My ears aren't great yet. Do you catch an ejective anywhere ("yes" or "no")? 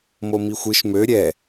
no